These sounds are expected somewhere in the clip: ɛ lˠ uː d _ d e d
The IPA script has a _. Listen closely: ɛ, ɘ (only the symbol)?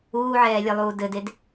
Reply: ɘ